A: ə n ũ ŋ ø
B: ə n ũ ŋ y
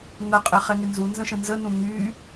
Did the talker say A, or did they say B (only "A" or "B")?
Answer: B